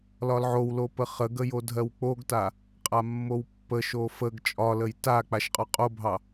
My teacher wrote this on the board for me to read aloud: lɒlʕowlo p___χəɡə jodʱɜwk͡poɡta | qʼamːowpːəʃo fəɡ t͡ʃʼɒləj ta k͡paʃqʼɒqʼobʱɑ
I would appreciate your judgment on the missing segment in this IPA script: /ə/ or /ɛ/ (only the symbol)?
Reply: ə